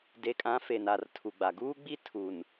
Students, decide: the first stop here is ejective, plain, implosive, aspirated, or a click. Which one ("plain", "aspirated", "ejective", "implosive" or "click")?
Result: plain